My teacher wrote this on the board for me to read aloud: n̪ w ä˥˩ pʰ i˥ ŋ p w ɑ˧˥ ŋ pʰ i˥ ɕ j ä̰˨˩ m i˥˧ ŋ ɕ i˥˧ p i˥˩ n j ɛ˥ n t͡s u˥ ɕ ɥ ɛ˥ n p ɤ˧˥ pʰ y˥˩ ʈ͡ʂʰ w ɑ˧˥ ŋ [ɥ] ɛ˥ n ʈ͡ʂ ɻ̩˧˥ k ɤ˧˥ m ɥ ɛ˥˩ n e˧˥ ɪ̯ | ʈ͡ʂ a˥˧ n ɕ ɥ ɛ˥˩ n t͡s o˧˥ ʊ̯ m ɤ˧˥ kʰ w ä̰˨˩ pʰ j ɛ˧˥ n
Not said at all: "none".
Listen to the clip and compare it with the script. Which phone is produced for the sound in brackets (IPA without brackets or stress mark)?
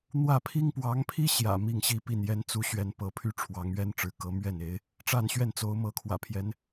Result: ɥ